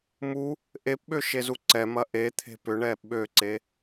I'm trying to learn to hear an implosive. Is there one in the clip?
yes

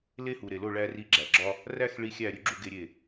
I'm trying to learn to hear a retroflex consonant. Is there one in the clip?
yes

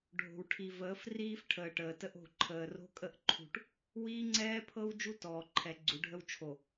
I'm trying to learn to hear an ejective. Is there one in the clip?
yes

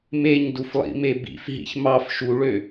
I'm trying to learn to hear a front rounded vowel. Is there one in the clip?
yes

